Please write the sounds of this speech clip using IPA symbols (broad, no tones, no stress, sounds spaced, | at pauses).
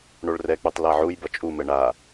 ɳ o ɭ r ɛ k͡p u tˤ l a ʕ u j b ʌ t͡ʃʼ u m ɛ ɳ a